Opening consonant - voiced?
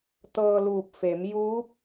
no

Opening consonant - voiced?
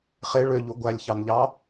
no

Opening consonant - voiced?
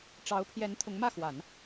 no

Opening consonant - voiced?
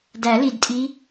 yes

